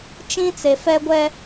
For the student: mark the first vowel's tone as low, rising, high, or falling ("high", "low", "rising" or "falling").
high